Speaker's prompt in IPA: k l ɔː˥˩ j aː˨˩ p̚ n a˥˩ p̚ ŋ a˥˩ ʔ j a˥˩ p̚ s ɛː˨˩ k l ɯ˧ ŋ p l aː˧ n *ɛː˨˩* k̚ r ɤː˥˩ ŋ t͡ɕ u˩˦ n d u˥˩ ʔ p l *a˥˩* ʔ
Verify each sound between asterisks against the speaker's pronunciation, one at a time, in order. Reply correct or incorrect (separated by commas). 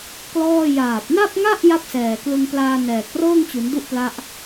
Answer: correct, incorrect